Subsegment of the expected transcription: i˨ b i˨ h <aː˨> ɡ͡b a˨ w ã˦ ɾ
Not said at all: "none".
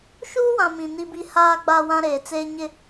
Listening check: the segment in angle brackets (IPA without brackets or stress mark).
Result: aː˨